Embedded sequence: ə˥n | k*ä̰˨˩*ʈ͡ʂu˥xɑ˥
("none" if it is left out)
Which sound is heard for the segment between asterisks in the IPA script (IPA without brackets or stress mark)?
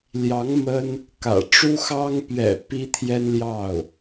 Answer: ä̰˨˩